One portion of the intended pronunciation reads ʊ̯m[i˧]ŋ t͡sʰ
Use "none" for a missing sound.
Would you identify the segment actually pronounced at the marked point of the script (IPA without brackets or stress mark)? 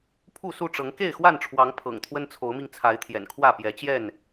i˧